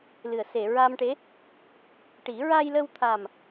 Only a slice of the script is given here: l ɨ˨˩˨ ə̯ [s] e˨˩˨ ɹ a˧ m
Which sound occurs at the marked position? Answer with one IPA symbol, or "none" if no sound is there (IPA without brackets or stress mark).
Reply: s